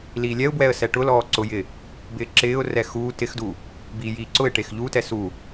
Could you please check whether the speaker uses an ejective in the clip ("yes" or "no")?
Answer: no